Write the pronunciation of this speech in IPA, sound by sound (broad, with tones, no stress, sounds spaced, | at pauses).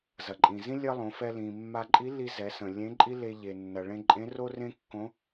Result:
z ɐ˩ ǃʼ ĩ˩ z ĩ˥ lʲ ɐ˥ lˠ õ˩˧ f ɛ˧ l ĩ˩ mː a˧ ǃʼ i˧˥ l i˧ z ɛ˩˧ s ə̃˩ lʲ ẽ˧˥ ǃʼ i˥ l e˧ ʎ e˩ nː ɐ˩ ɭ ẽ˧ ǃʼ ẽ˧˥ r o˥ r ẽ˥ kː õ˧˥